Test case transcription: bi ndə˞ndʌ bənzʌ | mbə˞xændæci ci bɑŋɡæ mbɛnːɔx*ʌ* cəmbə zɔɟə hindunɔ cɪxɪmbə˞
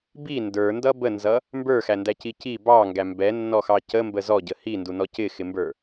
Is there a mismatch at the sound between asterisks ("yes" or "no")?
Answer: yes